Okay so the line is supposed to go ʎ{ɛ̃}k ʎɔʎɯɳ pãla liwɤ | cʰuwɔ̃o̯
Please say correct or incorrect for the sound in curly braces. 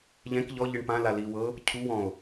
correct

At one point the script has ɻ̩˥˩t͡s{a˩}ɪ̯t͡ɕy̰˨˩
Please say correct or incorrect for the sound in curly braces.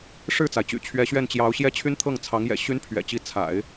correct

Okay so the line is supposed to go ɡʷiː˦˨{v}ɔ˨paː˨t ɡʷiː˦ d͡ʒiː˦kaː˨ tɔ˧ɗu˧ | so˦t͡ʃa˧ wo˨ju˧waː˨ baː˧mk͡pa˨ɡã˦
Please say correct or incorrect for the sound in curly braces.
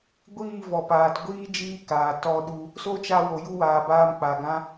correct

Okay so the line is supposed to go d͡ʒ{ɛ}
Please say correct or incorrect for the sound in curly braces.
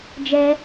correct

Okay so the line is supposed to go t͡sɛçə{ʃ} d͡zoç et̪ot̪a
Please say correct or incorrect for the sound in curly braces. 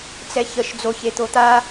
correct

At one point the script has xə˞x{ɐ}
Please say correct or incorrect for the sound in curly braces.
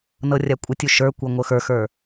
incorrect: ə˞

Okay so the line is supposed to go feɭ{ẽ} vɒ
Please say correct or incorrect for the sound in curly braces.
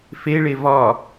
incorrect: e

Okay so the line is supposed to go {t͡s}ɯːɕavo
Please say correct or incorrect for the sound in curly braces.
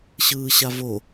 incorrect: ɕ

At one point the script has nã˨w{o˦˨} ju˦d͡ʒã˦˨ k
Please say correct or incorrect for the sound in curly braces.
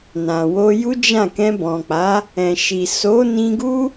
incorrect: o˧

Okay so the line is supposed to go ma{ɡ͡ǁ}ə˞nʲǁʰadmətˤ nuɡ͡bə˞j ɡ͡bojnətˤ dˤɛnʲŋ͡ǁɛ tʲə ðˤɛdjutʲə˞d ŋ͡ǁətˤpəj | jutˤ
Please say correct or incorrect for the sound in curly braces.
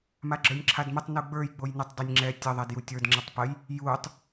correct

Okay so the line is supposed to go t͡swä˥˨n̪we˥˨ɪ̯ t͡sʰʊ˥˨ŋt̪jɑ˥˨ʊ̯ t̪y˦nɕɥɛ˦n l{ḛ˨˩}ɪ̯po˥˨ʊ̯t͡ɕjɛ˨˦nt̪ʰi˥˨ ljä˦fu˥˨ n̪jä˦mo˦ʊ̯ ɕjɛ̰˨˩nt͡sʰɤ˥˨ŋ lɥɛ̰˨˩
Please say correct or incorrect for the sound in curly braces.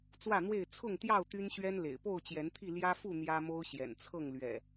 correct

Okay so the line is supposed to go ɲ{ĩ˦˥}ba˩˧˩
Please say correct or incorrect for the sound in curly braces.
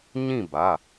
incorrect: ĩ˥˨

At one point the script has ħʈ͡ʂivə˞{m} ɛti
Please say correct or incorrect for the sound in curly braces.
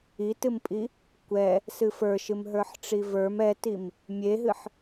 correct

